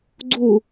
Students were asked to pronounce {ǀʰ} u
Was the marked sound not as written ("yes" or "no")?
yes